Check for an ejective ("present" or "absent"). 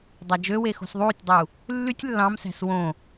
absent